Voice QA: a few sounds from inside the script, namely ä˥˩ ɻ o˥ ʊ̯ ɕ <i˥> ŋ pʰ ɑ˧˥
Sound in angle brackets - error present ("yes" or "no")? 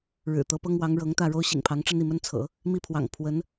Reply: yes